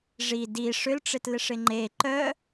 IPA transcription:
ʐi di ʂʏlʈ͡ʂɪtlɪʂɪ ŋ͡ǃe ǃœ

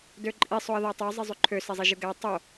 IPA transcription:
døǃʼi sˤoə̯ðætˤy zˤizˤyǃʰø sezˤiʒɯɡæ tˤo

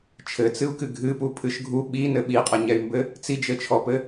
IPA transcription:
t͡ʃʰɘt͡sɨu̯kɨ ɡʱɨpupʰɨʃ ɡʱu ɓinɘ ɓiqʼɛɲɛy̯mbɘ | t͡sid͡ʒɘt͡ʃʰɔpɘ

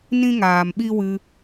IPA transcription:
nĩ˦ŋaː˨mɓi˦wɨ˧

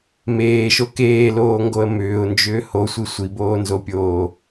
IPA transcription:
meːʃo keːloːŋɡoə̯ mʏːʊ̯nd͡ʒʏː hosʷi sʷiboːnzopʲoː

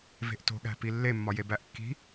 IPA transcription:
ve̤ʔto̤ɠæ̤pi lːemːɒje bæʔkːi̤

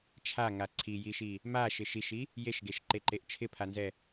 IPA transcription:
t͡ʃʰaŋa ǀʰijiʃi | ma ʃɪʃiʃi | jeʃɡeʃǃeǃeʔ t͡ʃʰɪpʰanzɛ

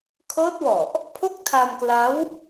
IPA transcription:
kʰɤː˦˥t̚wɔ˨˩ʔ | pʰo˥˩k̚tʰa˧mkla˦˥w

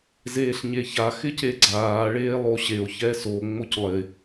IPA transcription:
zeːɬɲeça xɪceɡ͡ǀaː ɭeːlˠoɕeo̯ çɛso ŋ͡moclˠɪ

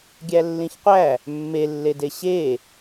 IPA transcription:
ɡʲælːĩçqʷæ | mːelːede ɕe

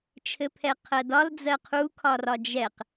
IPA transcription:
t͡ʃʰɘpʰɛqʰɜdɒl d͡zɜqʰukʰɒrɒ d͡ʒɛq

